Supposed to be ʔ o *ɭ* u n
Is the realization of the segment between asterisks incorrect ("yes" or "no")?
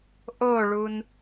no